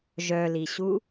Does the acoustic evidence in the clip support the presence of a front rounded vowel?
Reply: yes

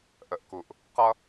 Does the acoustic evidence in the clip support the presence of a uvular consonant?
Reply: yes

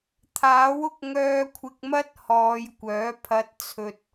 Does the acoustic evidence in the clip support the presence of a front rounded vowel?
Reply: yes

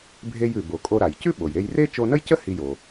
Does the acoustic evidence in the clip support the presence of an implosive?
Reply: yes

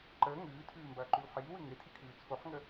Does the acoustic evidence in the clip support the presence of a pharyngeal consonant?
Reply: yes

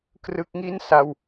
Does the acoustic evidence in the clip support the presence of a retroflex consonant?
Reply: no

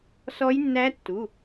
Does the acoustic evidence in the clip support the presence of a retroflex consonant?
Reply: no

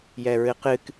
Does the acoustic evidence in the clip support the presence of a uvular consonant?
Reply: yes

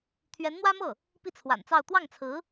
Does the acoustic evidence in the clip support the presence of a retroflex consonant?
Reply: no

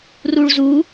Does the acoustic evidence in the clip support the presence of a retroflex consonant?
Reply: yes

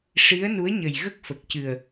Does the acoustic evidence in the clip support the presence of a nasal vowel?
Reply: no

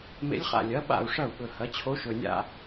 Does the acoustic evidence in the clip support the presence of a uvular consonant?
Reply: yes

